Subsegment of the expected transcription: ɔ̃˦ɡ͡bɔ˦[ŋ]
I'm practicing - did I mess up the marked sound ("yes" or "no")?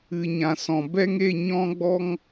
no